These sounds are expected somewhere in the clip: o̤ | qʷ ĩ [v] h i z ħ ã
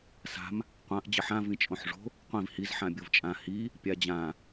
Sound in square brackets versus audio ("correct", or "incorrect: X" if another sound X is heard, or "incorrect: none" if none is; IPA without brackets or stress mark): correct